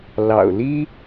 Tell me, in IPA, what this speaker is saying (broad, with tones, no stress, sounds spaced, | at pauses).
l ɑ̰˨˩ ʊ̯ l i˥